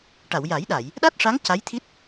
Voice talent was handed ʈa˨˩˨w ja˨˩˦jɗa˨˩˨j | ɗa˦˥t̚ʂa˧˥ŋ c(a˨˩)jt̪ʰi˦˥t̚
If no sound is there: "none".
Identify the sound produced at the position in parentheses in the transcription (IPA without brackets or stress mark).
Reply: a˧˥